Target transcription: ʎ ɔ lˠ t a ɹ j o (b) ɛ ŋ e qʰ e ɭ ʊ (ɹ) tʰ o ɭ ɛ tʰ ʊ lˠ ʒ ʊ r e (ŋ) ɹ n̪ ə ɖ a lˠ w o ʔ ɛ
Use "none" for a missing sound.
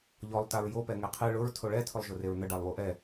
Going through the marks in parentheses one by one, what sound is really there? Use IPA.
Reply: p, ɹ, none

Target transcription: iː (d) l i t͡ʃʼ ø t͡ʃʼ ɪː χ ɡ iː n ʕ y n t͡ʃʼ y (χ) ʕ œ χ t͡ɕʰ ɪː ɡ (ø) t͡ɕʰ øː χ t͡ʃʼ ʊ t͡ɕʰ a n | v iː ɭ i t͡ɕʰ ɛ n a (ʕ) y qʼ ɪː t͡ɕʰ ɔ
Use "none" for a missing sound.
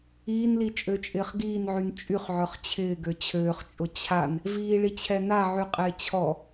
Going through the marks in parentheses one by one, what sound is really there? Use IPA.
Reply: n, χ, ø, ʕ

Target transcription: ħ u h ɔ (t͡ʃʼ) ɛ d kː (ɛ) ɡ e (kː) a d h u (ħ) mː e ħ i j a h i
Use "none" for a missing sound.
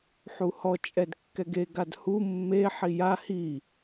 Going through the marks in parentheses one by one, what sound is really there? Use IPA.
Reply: t͡ʃʼ, ɛ, ɡ, none

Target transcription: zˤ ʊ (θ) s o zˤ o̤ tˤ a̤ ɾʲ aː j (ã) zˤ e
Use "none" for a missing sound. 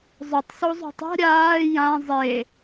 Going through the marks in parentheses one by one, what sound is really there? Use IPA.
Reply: tˤ, ã

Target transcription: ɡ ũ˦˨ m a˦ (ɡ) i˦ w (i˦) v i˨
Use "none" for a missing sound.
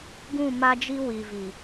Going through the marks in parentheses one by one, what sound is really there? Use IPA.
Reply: d͡ʒ, i˨

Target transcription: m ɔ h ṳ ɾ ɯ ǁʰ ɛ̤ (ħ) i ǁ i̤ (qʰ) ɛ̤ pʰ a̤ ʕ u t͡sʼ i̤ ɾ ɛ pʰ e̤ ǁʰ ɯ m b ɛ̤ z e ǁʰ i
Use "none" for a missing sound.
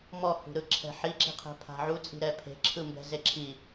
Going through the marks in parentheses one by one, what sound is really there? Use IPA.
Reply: ħ, qʰ

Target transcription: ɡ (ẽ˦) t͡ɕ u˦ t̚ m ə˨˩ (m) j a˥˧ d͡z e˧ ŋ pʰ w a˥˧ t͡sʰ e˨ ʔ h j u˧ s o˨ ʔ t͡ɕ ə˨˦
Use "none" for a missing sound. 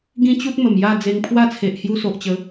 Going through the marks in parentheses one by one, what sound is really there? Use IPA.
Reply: ĩ˦, m

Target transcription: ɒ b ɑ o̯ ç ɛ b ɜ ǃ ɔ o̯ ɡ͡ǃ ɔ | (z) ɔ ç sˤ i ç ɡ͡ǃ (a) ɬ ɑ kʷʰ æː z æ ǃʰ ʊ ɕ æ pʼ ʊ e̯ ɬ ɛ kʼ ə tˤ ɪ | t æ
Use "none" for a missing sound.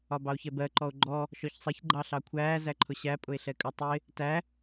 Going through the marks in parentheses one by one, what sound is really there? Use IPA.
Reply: ʃ, ɑ

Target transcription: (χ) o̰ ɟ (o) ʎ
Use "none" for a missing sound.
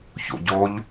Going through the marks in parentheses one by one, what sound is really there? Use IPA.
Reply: ç, o

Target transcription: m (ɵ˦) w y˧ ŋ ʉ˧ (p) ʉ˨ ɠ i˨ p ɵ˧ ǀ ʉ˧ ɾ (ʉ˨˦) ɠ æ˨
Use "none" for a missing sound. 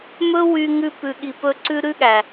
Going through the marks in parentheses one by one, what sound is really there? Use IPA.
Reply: ɵ˦, p, ʉ˦

